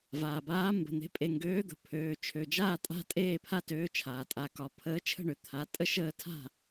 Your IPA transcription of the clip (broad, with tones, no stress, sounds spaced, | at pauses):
v aː˩ b aː˨˥ m b ə̤˩˧˩ n̪ e̤˨˥ pʼ e˩˧˩ ŋ ɡ øː˨˥ d̪ ə̤˩ pʰ øː˩˧˩ t͡ʃʰ ø˩˧˩ d͡ʒ aː˥˩ tʼ a̤˥˩ tʼ eː˥˩ pʰ a˥˩ t øː˨˥ t͡ʃʰ aː˩ tʼ a˩˧˩ k ɒ˩˧˩ pʰ əː˨˥ t͡ʃʰ ə̤˥˩ ɳ ø˩ t̪ʰ a˩˧˩ tʼ ə˦ ʃ əː˥˩ tʰ a̤˥˩